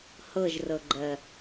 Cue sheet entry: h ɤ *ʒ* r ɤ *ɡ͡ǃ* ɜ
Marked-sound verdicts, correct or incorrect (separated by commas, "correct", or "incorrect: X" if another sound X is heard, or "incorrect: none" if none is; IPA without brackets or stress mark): correct, correct